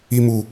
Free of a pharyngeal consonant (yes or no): yes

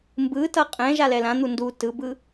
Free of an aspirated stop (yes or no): yes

